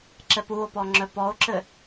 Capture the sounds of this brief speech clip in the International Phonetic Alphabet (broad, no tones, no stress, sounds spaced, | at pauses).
ǁ ɛ p u o̯ p ɔ ŋ͡ǁ œ p ɔ o̯ ǁ ɘ